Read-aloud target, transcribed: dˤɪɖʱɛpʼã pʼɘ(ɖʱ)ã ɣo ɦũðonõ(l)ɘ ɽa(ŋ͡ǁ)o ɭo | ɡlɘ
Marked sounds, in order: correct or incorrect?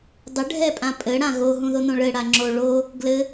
incorrect: ɽ, incorrect: ɭ, correct

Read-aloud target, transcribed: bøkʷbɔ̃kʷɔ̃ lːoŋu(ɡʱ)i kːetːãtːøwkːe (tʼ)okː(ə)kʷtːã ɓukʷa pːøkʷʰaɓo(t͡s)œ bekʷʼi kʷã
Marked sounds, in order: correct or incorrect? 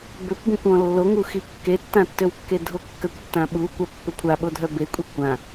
incorrect: x, incorrect: dʱ, correct, incorrect: dʱ

